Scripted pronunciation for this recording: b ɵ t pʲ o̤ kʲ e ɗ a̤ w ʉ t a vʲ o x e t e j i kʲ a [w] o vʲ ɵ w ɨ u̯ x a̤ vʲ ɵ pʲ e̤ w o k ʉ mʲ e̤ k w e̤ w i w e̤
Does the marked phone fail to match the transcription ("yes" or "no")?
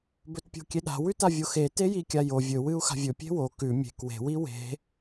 yes